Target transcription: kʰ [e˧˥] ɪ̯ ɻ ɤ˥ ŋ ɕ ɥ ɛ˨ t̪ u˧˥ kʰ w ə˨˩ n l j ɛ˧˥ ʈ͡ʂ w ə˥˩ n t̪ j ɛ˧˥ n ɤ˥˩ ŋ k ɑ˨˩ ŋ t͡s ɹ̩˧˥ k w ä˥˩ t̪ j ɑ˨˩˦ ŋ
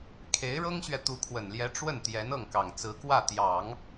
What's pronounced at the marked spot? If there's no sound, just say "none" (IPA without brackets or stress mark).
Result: e˧˥